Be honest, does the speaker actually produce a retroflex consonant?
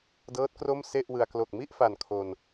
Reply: no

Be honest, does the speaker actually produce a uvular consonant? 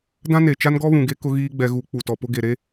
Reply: no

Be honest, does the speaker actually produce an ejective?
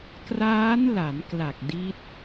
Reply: no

